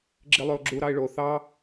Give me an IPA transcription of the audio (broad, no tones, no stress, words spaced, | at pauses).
ɡ͡ǁilˠyʊ̯ɡ͡ǁu ɾɑɪ̯ɭo θɑ